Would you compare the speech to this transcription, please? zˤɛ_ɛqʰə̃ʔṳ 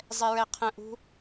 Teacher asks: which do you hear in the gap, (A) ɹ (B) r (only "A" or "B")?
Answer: A